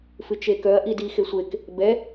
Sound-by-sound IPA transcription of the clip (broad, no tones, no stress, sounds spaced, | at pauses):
f ɨ t͡ʃ e k œ ɐ̯ ʔ i d i x e sʷ e k | b ɛ